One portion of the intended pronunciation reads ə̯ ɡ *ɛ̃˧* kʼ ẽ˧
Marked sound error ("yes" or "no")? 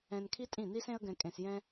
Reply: no